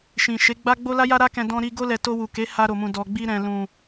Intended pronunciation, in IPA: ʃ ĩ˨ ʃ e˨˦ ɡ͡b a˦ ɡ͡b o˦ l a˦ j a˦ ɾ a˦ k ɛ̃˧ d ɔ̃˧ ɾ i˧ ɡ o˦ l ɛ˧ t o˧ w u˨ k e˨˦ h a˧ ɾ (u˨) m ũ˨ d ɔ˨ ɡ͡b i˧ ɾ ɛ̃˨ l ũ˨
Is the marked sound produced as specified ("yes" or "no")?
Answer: no